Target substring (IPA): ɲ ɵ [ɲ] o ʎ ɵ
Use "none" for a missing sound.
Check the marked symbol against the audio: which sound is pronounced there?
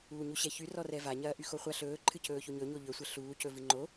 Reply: ɲ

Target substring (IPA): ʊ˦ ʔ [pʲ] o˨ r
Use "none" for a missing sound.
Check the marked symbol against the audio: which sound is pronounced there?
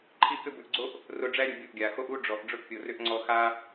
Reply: pʲ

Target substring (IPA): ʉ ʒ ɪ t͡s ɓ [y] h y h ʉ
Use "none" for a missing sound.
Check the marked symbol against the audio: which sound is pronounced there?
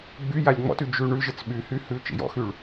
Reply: y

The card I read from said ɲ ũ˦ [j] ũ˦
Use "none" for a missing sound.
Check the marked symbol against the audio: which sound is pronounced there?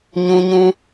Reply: ɲ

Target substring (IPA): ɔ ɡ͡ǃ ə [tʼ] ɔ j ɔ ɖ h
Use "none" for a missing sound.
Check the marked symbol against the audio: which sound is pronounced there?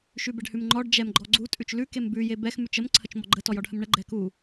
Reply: t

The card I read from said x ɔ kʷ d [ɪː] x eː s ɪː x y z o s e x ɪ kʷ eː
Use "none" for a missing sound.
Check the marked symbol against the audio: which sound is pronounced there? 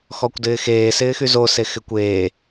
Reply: ɪː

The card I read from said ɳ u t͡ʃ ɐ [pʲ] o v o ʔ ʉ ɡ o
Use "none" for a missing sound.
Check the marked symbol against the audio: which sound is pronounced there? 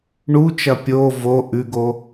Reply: pʲ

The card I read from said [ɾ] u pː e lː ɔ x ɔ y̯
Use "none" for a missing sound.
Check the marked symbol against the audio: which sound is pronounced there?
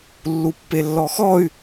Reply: lː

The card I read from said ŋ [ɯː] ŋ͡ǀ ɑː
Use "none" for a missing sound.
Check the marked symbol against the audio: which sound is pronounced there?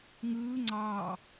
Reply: ɯː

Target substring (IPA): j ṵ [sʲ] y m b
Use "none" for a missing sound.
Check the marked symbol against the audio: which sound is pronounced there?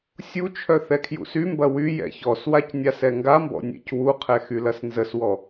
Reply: s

